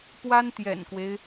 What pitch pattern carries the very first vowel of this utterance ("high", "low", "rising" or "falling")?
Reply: high